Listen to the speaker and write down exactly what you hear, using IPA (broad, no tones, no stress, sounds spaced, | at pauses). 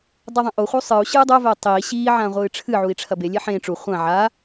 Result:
dˤ ɨ ðˤ ɛ̃ ʔ o χʷ ɘ u̯ sˤ ɨ u̯ ɕ ɨː dˤ o v ɘː tˤ iː ɕ iː ʕ ãː ʁʷ ɨː ʈ͡ʂʰ ɨ ʕ u i̯ ʈ͡ʂʰ ɐ b e lʲ e ħ ẽ ʈ͡ʂ u χʷ ã ʕ a